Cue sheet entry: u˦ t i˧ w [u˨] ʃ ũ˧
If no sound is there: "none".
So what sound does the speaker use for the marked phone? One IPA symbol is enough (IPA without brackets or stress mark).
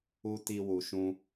u˨